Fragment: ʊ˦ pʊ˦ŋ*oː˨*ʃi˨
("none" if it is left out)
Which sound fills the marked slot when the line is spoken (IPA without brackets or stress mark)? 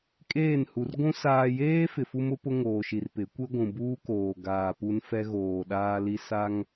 oː˨